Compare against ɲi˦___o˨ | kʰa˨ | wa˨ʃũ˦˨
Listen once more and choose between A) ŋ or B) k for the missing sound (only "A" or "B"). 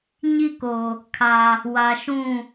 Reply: B